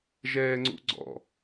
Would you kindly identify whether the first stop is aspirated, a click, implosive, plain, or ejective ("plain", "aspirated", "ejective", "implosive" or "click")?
click